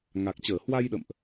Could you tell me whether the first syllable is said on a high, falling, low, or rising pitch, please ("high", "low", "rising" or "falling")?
low